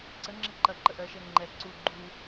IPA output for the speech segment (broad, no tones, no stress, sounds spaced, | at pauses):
ǀ ə ŋ͡ǁ ɛ ǃ ɐ ǃ ə ʔ ɜ ʃ ɛ ŋ͡ǃ ɛ ǀ u ɡ͡ǃ u